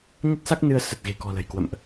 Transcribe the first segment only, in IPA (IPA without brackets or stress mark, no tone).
ɲ